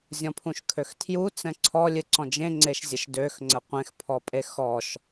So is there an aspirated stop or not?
yes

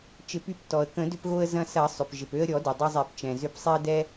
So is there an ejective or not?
no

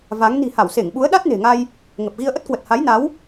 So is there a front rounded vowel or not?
no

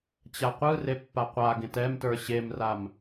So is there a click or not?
no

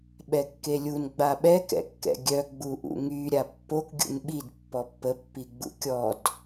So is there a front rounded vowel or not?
yes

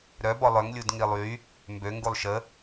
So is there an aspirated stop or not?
no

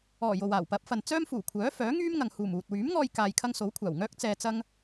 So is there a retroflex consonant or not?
no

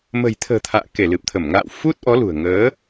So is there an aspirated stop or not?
yes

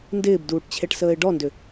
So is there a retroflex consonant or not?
yes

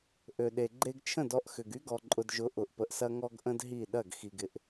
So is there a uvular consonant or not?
no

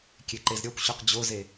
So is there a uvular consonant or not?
yes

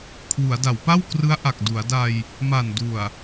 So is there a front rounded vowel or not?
no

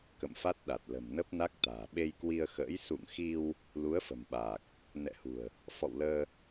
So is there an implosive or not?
yes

